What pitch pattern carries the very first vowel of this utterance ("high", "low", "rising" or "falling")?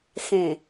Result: low